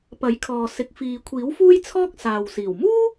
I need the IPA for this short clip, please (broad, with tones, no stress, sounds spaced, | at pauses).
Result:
p ɐ˨˥ j kʰ ɔː˨ s ɪ˨ k̚ f iː˨ kʷʰ iː˨˥ w f uː˥ j t͡sʰ ɔː˥ k̚ s aː˨ w s iː˨˩ w m uː˥